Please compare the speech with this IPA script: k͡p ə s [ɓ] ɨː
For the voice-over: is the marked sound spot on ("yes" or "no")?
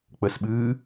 yes